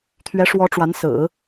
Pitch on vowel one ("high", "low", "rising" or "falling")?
rising